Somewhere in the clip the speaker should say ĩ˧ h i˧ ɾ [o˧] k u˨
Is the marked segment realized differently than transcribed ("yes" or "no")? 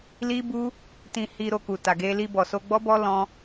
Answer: no